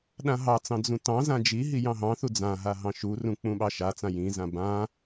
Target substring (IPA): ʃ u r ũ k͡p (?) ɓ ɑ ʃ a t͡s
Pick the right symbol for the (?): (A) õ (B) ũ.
B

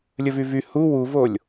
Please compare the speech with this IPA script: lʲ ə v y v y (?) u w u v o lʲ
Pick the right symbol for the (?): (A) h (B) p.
A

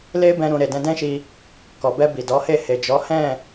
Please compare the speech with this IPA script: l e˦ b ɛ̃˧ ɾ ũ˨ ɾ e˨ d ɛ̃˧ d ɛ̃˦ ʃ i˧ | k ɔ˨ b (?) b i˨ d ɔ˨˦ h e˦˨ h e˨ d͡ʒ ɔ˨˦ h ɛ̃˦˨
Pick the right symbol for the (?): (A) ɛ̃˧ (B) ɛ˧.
B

